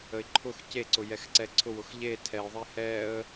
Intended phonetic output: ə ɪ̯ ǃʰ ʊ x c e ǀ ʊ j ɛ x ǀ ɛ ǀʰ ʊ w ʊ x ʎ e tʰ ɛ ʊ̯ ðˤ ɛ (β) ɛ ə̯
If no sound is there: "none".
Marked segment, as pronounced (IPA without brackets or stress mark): h